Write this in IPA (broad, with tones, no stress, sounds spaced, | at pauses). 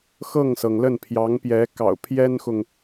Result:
x ɤ˥˩ ŋ s ɤ˩ ŋ l ə˥˩ n pʰ j ɑ˧˥ ŋ p j ɛ˧˥ k ɑ̰˨˩ ʊ̯ pʰ j ɛ˥ n x ʊ˨ ŋ